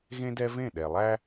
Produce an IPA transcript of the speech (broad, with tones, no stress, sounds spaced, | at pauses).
ɣ ẽ˦ d ɛ˦ v ẽ˦˨ ɗ ɛ˨ lˠ æ˦